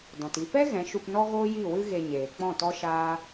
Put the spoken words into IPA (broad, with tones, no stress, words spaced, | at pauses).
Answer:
dɔ̃˨ti˧ pɛ˦ ɣɛ̃˨˦ʃu˧pnɔ˦ɣoː˦ ji˦˨wɨ˦ ɣe˧ɲeː˨ k͡pɔ̃˦˨tɔ˦ʃaː˦